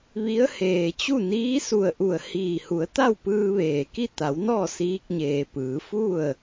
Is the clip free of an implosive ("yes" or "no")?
yes